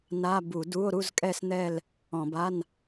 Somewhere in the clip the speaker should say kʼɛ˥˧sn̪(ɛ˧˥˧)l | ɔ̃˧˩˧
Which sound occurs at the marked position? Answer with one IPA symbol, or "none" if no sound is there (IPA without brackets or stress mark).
ɛ˥˧